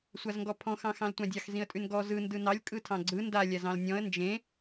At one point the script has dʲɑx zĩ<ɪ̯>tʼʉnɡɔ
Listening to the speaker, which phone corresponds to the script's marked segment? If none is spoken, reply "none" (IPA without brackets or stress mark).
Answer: ə̯